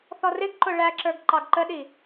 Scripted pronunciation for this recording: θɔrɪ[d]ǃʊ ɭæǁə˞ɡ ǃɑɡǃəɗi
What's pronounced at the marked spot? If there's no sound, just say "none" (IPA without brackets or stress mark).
ɡ